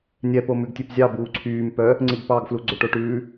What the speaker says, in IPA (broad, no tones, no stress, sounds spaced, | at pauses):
nʲ ɛ p o m ʉ ɡ tʲ ø p zʲ ɑ b uː ǀʰ yː m p œ | ŋ͡ǀ i ɡ p ɑ ɡ f l u ɡ͡ǀ ɵ ʈ o ʈ ʉː